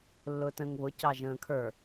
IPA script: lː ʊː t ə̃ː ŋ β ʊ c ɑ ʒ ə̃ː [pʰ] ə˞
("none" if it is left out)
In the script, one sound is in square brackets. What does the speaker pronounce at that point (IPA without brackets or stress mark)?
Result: kʰ